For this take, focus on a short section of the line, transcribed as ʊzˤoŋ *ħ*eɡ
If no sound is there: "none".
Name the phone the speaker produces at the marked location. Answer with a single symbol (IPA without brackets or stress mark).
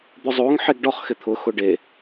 ħ